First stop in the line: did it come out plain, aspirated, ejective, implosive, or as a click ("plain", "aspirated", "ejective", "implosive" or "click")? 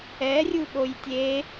implosive